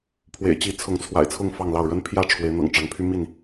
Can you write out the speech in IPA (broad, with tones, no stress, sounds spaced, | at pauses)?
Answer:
pʰ w ḛ˨˩ ɪ̯ t͡ɕ i˨˦ t͡sʰ ʊ˨˦ ŋ t͡sʰ w a̰˨˩ ɪ̯ t͡sʰ ʊ˥˨ ŋ f ɑ˥˨ ŋ l ɑ˥˨ ʊ̯ ɻ ə˦ n pʰ j ä˥˨ ʈ͡ʂʰ w e˨˦ ɪ̯ n̪ ɤ̰˨˩ ŋ ʈ͡ʂ ɑ˨˦ ŋ pʰ y˦ m i˥˨ n